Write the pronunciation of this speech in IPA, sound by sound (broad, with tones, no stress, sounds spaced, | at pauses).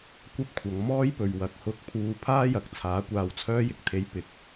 kʷ ɐ˥ p̚ kʷʰ ɐ˨˧ ŋ m ɔː˥ j p ɵ˨ ɥ w ɐ˨ k̚ h ʊ˧ k̚ pʰ uː˧ pʰ aː˥ j ɐ˨˥ k̚ t͡sʰ aː˨˥ kʷ aː˧ w t͡sʰ œː˥ j ɪ˨ k̚ t̪ʰ e˨˥ j p ɪ˨ k̚